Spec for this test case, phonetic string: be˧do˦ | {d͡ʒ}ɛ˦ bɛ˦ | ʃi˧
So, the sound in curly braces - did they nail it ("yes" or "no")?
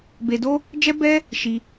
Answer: yes